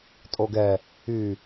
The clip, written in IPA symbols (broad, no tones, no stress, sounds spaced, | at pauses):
tʼ o ɡ ɛ | y